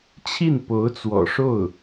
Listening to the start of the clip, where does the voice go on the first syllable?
falling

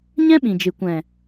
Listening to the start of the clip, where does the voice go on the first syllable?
high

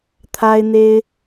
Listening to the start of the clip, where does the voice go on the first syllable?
high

